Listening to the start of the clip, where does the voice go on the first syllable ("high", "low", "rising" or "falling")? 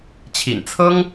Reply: low